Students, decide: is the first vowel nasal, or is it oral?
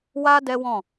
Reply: oral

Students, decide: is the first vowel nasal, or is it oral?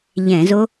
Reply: nasal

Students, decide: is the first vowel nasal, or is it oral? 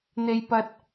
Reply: oral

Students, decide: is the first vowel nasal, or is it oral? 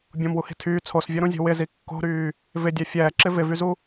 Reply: nasal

